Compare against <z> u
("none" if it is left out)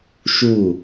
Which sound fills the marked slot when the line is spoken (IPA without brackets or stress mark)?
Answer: ʃ